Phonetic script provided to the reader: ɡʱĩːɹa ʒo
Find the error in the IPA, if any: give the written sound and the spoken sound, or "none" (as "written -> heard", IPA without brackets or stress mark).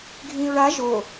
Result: none